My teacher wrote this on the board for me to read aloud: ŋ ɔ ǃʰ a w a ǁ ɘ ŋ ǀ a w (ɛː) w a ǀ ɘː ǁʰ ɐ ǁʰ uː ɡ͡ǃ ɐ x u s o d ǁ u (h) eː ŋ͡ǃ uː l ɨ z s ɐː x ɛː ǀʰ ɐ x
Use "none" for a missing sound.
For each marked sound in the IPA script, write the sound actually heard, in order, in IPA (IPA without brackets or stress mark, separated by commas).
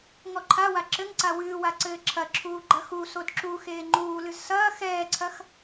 ɨː, x